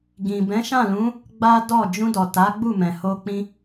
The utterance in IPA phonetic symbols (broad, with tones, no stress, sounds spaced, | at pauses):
ɡ ĩ˨ b ɛ̃˨˦ ʃ ã˦˨ l ũ˨˦ | ɡ͡b a˦ d ɔ˦˨ d͡ʒ ũ˧ d ɔ˨ t a˨˦ ɡ͡b u˦˨ m ɛ̃˨ h o˧ k͡p ĩ˧